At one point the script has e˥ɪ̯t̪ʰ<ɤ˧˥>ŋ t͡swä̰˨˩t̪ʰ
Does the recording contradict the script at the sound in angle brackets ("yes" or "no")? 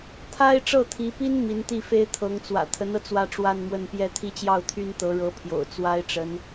no